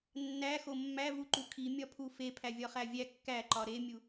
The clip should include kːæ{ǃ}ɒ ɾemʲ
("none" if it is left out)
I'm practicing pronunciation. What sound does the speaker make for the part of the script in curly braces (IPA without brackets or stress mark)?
ǃ